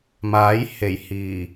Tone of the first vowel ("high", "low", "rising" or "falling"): rising